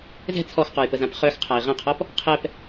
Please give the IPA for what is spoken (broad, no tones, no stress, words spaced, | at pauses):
zɛ̤ t͡sʰɔxqɔjpəzãp χœxqʰai̯ ʁə̃qʰɔp | qʰɛp